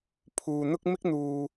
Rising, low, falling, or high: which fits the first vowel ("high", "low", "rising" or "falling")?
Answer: low